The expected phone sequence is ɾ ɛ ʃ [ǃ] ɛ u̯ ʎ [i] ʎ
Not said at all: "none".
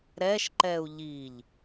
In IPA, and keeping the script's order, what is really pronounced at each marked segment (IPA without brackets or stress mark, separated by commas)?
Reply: ǃ, i